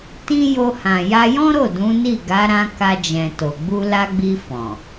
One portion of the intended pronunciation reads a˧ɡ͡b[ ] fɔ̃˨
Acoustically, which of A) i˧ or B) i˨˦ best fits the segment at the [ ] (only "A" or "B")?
A